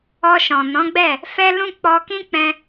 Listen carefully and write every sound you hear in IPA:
ɔ˧ ʃ ɔ̃˨ n ɔ̃˨˦ ɡ͡b ɛ˦˨ | f ɛ˦ l ũ˦ k͡p ɔ˧ k ĩ˦ k͡p ɛ̃˧

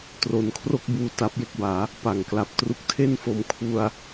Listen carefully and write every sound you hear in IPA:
t r o˧ n kʰ r o˥˩ k̚ b uː˧ t a˦˥ p̚ j e˥˩ k̚ b aː˩˦ | p a˨˩ ŋ k l a˨˩ p̚ t r u˦˥ k̚ tʰ e˥˩ n f o˨˩ m kʰ u˧ a̯

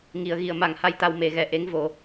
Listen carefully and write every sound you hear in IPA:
ŋ i˨˩ ə̯ ɣ i˨˩˨ ə̯ m a˨˩ ŋ h a˧ j t̪ a˧ w m e˨˩˦ ɣ ɛ˨˩ ʔ e˧˥ ŋ v o˨˩˦

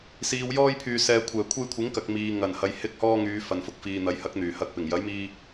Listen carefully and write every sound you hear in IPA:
s iː˨ w j ɔː˧ j pʰ yː˨ s ɛː˨ kʷʰ ɛː˨˩ kʷʰ e˧ j kʷʰ ɪ˨˥ ŋ k ɐ˨ k̚ m iː˨ ŋ ɐ˨˩ n h ɐ˨ j h ɪ˧ k̚ h ɔː˧ ŋ yː˨˧ f ɐ˨ n f ʊ˧ k̚ f iː˨ n̪ ɐ˨˥ j h ɐ˨˥ k̚ n̪ yː˨˩ h ɐ˨ k̚ p ɪ˨˩ ŋ j ɐ˨˥ j m iː˧

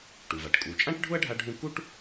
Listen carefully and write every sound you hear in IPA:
ʈ u˩ v a˩ ʈ kʼ u˩ t͡ʃʼ ã˥ ʈ ɖʱ ʊ˥ ɐ̯ ɖʱ a˥ ɖʱ ũ˥ k u˥ ʈ

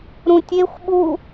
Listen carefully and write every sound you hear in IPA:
ɾ ũ tʲ e xʷ ɓ u

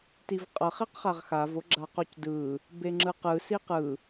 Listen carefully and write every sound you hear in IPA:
t i v qʼ ʌ χ e q χ a ʁ x a v o ɡ͡ǁ a q o c d ɯ | b e ŋ͡ǁ ɯ q ɯ s i q ɯ

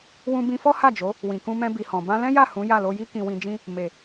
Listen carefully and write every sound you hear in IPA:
w ũ˧ b ĩ˧ f ɔ˦ h a˦˨ d͡ʒ o˨˦ | w ĩ˨ k ũ˧ m ɛ̃˧ b i˨ h ɔ̃˨ b ã˧ l ɛ̃˦ j a˦˨ h ũ˨˦ j a˦˨ l o˧ j i˦ k ĩ˧ w ĩ˧ d͡ʒ ĩ˦ | m e˨

